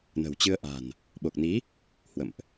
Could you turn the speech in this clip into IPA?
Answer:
n ə̤˨˩ w t͡ɕ ɨ˧ ə̯ ʔ a̤˨˩ n | ɓ o˨˩ k̚ n i˨˦ | h w ə̰˧˨ m ʔ

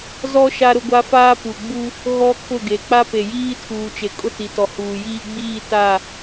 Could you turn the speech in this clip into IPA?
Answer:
z ɔ˦ ʃ a˦ ɾ ʊ˦ ɡʷ a˦ f aː˦ p u˨ ɡ͡b u˦ | ɣ ɔ˦ kʰ ʊ˦˨ ɡ e˨ k͡p a˦ p e˨ j iː˦ tʰ uː˨ t͡ʃ e˨ kʼ ʊ˦ t i˨ t ɔ˨ h uː˨ j iː˦ ɡ͡b iː˦˨ t a˦˨

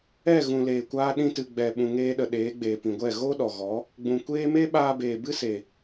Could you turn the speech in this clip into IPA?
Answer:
ɛ˦˨ ɣ ũ˨ l eː˨ kʷ aː˧ ɗ ĩ˧ t ɨ˨ ɡ͡b ɛ˨ ɓ ũ˨ ŋ eː˧ ɗ ə˨ ɗ eː˨˦ ɡ͡b eː˨ p ĩ˨ ɡʷ ɛ˦˨ ɣ o˦ ɗ ɔ˨ ɣ ɔ˨˦ | ɡ͡b ũ˨ kʷ eː˦ m e˦ ɓ aː˧ b eː˨ b ɨ˦ s e˨

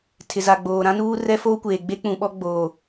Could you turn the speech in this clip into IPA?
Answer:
tʰ ɪ˨ z a˨ ɡ͡b oː˨ ɾ ã˦ n uː˦ r ɛ˦ f oː˦ kʷ eː˨ ɡ͡b e˦ k͡p ũ˨ ɓ ɔ˦ ɡ͡b oː˨

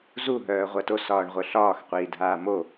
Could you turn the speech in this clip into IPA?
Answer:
z u ɦ œː ʁʷ ɜ t o s ɒː ɳ ʁʷ œ ɬ ɒː x qʷ iː dʱ aː m o

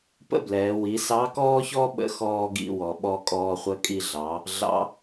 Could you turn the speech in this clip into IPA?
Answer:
p ə̰˥ b l ɛː˩˧ w i˩˧ s ɑ˧˥ k ɔː˥ ç ɔ˥ ɓ ə̰˧˥ x ɔː˧ ɡ ḭ˧ w ɔ˩ ɓ ɔ˧ kʼ ɔː˧ χʷ ə˧˥ kʼ i˧ ɮ ɑ˩˧ | ɮ ɑ̰˧˥

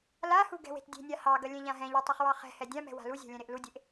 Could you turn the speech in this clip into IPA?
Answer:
l a h u ɡ ɛ̤ w e̤ t dʲ e̤ nʲ a h ɑ ɡ ɐ lʲ ɛ̃ ʎ ã ɦ ɛ̃ ʎ ɛ tˤ u χ w ɑ χ ɛ̤ h ɛ dʲ ã m ɛ̤ w a̤ l u zʲ a̤ lʲ ɛ̃ ɾ e ʔ l u dʲ e ʔ

